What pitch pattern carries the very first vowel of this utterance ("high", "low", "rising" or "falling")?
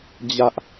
high